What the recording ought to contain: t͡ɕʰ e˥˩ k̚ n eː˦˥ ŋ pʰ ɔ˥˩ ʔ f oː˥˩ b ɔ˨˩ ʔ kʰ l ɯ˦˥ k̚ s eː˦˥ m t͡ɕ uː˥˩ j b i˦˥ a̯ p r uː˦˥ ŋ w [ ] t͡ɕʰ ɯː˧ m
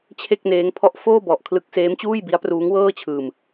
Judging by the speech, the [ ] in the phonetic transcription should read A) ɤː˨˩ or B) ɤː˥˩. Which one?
B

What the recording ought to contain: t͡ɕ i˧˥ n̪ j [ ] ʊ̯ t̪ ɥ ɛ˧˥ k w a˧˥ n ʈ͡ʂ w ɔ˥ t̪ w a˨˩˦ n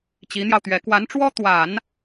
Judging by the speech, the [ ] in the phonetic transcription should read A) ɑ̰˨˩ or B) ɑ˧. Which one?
B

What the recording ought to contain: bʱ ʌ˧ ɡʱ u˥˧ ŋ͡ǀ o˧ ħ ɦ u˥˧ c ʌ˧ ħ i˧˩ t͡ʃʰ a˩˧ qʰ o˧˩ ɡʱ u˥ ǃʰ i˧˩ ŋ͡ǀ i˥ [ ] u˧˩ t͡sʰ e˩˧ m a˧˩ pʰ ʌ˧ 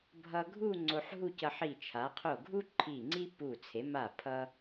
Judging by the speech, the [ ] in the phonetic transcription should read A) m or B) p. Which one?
B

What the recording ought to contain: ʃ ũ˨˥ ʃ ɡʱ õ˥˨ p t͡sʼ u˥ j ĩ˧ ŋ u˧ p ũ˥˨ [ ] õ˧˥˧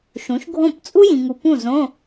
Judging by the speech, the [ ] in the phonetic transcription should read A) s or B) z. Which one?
B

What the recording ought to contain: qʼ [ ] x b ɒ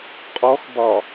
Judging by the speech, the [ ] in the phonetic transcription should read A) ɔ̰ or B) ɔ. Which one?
B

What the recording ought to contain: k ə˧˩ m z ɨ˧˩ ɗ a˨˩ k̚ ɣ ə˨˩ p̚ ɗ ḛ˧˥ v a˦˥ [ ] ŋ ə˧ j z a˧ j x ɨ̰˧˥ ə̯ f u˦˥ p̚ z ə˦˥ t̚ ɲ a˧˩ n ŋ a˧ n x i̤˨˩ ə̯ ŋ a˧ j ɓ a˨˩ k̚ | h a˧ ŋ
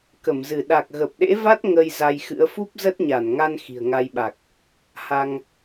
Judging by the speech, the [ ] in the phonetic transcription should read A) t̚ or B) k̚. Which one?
A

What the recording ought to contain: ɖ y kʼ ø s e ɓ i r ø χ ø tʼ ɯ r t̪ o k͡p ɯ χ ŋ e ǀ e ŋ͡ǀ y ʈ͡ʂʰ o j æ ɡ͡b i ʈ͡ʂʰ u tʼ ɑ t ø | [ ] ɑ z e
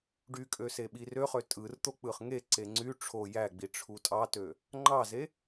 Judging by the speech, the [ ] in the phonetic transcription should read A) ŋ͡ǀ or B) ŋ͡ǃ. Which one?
B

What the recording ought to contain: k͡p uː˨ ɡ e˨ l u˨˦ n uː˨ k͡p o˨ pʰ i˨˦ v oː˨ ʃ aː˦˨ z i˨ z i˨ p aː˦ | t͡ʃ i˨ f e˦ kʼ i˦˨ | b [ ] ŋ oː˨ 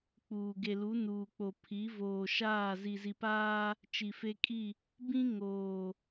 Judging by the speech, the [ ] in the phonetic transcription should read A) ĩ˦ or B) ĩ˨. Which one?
A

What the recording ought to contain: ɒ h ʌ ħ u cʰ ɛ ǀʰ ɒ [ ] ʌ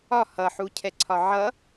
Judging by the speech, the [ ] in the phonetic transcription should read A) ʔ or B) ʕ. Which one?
B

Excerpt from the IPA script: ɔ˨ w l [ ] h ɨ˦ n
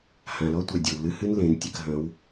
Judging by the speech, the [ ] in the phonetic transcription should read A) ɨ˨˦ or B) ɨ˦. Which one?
B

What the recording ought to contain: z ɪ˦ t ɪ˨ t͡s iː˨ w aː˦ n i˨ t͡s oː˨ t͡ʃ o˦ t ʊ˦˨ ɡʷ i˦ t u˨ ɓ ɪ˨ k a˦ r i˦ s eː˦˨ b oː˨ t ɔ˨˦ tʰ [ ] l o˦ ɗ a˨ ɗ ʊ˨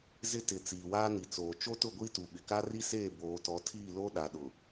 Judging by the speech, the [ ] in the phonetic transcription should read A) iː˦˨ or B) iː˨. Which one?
A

